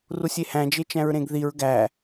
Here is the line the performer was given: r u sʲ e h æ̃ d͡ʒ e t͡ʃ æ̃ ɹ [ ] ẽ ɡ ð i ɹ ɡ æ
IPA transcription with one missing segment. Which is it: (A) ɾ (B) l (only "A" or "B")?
A